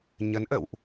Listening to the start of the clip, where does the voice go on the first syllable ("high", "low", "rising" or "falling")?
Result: rising